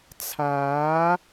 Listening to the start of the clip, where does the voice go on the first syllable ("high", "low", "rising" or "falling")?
rising